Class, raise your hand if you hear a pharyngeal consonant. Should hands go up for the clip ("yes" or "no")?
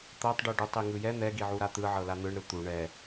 yes